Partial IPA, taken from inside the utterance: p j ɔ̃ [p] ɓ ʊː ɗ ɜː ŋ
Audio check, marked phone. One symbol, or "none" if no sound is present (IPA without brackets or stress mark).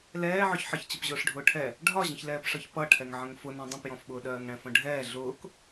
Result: f